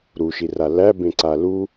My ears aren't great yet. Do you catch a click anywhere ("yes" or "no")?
yes